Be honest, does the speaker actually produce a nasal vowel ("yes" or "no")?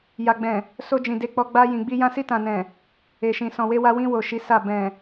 yes